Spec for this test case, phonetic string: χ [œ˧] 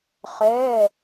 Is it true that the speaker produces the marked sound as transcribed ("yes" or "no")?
no